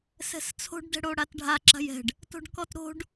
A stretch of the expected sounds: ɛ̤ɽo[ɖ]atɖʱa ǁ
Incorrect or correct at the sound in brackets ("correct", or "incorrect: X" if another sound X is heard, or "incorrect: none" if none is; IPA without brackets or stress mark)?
incorrect: ɽ